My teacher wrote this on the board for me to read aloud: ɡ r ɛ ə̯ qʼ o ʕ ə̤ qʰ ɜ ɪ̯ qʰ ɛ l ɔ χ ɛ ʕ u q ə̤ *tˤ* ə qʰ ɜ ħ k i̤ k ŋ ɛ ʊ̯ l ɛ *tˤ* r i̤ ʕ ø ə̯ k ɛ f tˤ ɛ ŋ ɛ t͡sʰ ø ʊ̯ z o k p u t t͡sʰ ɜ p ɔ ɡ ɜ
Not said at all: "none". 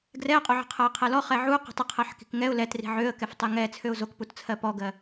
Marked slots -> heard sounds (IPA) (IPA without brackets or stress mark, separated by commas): tˤ, t